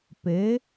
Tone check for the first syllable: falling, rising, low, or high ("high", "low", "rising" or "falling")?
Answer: rising